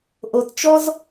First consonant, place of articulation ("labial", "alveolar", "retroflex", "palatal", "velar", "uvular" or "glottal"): glottal